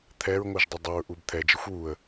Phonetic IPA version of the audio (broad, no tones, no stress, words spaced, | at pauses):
t̪ʰɛɹŋʷɤʒdˤə dˤəɹʔub t̪ʰɛd͡ʒəxʷ wuə̯